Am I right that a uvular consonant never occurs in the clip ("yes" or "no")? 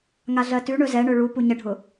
yes